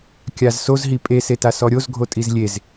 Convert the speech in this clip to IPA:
kʲ a z s o z ɦ i pʼ e s e t a s ɔ ɾʲ o z ɡʱ o tʼ i z lʲ e z

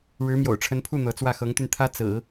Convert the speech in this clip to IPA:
ɻ ɻ̩˧˥ m j o̰˨˩ ʊ̯ ʈ͡ʂʰ ə˧˥ n pʰ u˥˩ n̪ ɤ˧˥ t͡s w ä˥˩ x ɤ˧˥ ŋ t̪ y˧ n t̪ʰ ä˥ t͡s ɹ̩˨˩˦

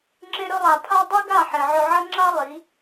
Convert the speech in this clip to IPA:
ŋ͡ǁ e˧ ɾ ɵ˧ lˠ a˨ pʰ a˦ dˤ i˦ ɡ a˦˨ ħ e˨ ʕ ɵ˧ ʕ ɐ˦ ŋ͡ǁ a˦ lˠ i˨˦

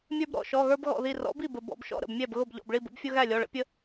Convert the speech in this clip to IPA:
mʲ ə˞˦ b ɾ ɔ̰˧˩ ʃ ɔ˩˧˩ ɣ ə˞˦ b ɣ ɔ̰˧˩ ð i˧˩ r ɔ̰˩˥ b i˥˩ b ə˩ b ɔ̰˧˩ b ʃ ɔ̰˥˩ ɾ ə̰˧˩ b mʲ æ˥˩ b ɣ ʊ˥˩ b ʎ ɔ̰˩˧˩ b ɭ i˥˩ b ə̰˦ b fʲ ʊ˦ ɣ æ˥˩ lʲ ɔ˩˧˩ ɭ ə̰˩˥ pʲ ə˦

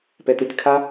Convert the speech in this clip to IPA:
p ɛ t ɯ tʲ kʰ a

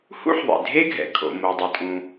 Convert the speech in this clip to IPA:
h ṵ˥ ħ ðˤ ḛ˩ dʱ e˥ ɡʱ ɛ̰˩ kʰ o̰˩ m o˩ dˤ e˩ tʼ ũ˩

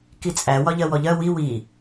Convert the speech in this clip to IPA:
k i t͡sʼ æ w ɒ ʎ ɜ w ɔ ʎ ɜ w i w i

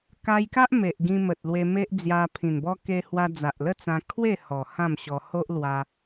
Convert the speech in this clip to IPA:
k a˧ j k a˦ ʔ m e˨ ʔ ɡ ĩ˧ m ə˨ t̚ l w e˧ m e˦ ʔ d͡z j a˧ pʰ ĩ˨˩ n b ɔ˦ k e˧ h w a˧ d͡z a˨ ʔ l ə˥˧ t͡s ã˧ kʰ w e˥˧ h ɔ˨˩ h ã˥˧ m ɕ ɔ˧ h o˦ ʔ l w a˧

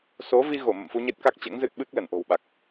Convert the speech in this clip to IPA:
s o˨˦ v i˧ ɣ o˧˩ m ə̰˧˨ m f u˧ ɲ e˦˥ t̚ k a˦˥ k̚ t͡ɕ ɛ̰˧˥ ŋ z ɨ˦˥ t̚ ɓ ɨ˦˥ k̚ l ə˧˩ n ʔ o̤˨˩ w ɓ a˨˩ k̚

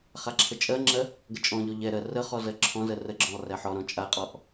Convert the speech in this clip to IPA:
χ a ǁʰ ə t͡ʃʼ ɜ ŋ͡ǁ ɜ | ɡ ə t͡ʃʼ ɔ̃ ʎ ɔ ʎ ɛ ɾ ɜ r ə χ ɔ z ɜ ǁʰ ɔ̃ z ɜ r ə ɡ͡ǁ ɔ̃ lˠ r ɛ ħ ɔ ɾ ɔ̃ t͡ʃʼ a qʼ ɔ ʔ

